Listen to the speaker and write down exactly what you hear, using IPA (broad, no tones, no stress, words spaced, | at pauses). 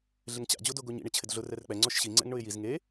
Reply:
ɮɪŋt͡ɕa̰ d͡ʑodoɡoɲḭ ɳɪt͡ɕʰɪdɮʊ rɛrk͡pɛ ŋ͡ǀɔʃɕi ŋ͡ǀɛ̰ŋɳʊɪ̯jiz ŋe